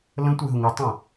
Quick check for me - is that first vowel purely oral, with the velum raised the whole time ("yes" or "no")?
no